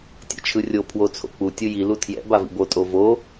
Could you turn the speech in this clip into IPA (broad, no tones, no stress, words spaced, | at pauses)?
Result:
tʲɛ̰t͡ʃʰɯrʲo pʰwot͡sʰo̰k͡pu tʲɯji lutʰjɛ̰ bavḭbo tʼovo